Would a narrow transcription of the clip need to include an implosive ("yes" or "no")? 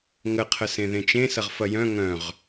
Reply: no